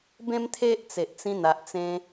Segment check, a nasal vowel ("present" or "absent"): present